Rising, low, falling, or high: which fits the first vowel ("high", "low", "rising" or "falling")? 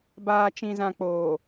low